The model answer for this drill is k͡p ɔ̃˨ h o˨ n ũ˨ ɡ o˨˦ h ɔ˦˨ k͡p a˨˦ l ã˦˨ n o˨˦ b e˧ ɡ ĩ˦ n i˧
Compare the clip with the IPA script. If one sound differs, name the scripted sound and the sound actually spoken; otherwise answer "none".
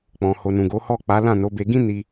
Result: none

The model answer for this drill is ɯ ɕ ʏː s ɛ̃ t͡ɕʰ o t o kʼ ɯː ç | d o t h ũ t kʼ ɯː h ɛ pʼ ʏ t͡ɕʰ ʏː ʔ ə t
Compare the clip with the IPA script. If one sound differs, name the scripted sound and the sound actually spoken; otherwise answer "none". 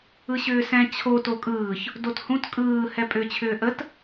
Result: none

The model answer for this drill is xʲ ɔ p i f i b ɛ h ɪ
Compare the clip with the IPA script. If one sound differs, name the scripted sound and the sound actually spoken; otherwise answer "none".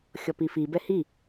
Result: ɪ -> i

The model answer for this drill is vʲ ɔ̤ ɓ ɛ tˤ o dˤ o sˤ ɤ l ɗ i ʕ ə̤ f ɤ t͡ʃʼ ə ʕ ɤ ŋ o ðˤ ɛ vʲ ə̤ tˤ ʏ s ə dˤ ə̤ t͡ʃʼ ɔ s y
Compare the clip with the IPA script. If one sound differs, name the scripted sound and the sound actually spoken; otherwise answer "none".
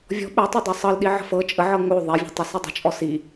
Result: y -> i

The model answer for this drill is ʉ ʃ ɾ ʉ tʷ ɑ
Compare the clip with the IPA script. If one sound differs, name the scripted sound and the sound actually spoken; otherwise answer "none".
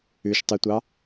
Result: ɾ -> tˤ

